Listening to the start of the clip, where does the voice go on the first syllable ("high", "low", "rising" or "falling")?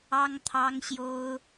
high